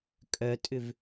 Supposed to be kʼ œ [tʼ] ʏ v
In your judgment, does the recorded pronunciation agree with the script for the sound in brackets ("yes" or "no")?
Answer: yes